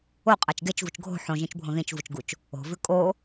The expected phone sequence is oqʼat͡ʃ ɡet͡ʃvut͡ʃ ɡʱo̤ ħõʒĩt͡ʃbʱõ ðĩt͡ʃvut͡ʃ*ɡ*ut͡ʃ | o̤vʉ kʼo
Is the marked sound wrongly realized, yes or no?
no